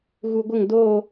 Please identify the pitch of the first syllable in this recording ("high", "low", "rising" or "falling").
low